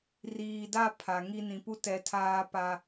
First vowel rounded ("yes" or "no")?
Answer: no